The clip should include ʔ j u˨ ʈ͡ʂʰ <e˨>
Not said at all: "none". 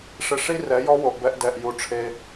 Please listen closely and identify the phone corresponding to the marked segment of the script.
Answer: e˧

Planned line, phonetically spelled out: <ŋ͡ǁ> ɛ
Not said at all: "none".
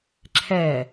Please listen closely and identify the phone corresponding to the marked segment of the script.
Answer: ǁʰ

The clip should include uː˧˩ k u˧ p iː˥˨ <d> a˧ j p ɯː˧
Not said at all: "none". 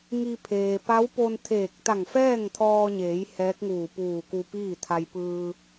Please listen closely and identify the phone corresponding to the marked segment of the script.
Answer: t̪ʰ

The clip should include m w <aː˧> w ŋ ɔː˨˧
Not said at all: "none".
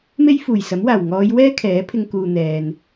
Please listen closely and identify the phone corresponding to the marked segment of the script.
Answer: aː˨˩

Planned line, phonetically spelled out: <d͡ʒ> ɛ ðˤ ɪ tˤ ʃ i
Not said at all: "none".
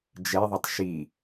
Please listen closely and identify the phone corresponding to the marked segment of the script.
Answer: d͡ʒ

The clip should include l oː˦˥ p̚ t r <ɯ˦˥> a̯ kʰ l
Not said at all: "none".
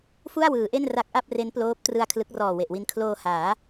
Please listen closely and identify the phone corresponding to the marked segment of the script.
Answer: ɯ˧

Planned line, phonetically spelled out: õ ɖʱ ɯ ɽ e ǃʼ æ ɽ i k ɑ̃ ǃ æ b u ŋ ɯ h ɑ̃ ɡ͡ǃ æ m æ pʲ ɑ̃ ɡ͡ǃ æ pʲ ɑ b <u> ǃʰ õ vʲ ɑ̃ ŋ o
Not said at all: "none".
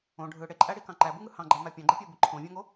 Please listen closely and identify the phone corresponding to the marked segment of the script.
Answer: ɯ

